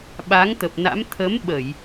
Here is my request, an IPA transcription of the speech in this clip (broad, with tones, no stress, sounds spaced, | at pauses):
ɓ a˨˦ ŋ t̪ ə˨˩ p̚ n a̰˧˥ m t̪ʰ ə˨˦ m ɓ ə˧˩˨ j